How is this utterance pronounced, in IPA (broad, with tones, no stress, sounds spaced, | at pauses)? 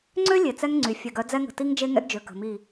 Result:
ŋ͡ǀ ø˦ lʲ e˨ t͡s ɛ˦ ŋ ŋ͡ǀ y˨ fʲ ɛ˨ ɡ œ˨˦ d͡z ɛ˦ ŋ ə̤˨ t i˦ ŋ d͡ʒ e˦ ŋ ɛ̰˦ ɡ d͡ʒ ø˨ k ə̤˨ m i˦˨